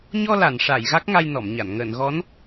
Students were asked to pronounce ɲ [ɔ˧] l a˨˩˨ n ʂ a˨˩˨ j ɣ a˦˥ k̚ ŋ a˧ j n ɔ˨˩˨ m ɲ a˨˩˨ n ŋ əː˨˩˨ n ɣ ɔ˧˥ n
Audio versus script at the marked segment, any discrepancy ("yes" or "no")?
no